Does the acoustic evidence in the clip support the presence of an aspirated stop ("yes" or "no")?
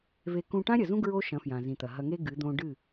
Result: no